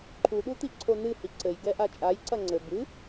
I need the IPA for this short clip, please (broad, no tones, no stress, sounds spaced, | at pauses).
ǃʰ u ɗ u t i ǀʰ o n ɨ h i ǀ ɘ j ɡ ɛ ʔ a t͡ʃʼ a j ǀ ɐ ŋ͡ǀ ɘ b ɨ